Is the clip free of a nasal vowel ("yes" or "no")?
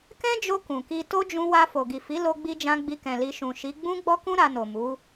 no